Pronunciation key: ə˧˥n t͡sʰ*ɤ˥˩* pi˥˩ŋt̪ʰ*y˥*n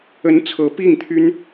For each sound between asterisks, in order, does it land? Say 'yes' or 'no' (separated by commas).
no, yes